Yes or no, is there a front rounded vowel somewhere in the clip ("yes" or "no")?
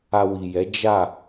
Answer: no